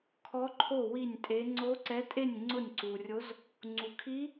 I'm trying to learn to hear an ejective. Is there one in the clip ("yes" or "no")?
yes